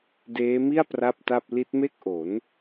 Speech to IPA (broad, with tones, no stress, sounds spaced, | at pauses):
d eː˦˥ m i˥˩ a̯ p r a˥˩ p̚ t a˥˩ p̚ l i˦˥ t̚ m e˥˩ k̚ ʔ o˩˦ n